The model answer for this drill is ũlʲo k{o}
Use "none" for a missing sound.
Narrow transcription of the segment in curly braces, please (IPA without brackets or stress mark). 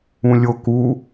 u